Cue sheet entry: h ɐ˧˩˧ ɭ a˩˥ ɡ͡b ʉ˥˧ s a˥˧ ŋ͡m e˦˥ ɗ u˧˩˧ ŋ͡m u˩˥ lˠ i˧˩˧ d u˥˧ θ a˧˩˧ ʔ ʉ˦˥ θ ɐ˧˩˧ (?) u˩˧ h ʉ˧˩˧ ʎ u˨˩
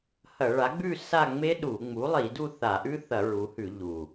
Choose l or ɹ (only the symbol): ɹ